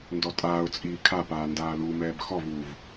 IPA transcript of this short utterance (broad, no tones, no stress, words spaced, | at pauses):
ndɔtʼaːʊ̯ t͡sʼiːkʰapaː ndaːlumɛːb xɔvuːv